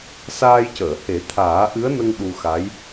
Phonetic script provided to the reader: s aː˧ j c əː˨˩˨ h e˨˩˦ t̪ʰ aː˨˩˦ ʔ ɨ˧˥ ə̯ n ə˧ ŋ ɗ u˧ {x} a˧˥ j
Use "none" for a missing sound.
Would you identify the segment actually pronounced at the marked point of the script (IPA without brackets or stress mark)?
x